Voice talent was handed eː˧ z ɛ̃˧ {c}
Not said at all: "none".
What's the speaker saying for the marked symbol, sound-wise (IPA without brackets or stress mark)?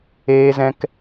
k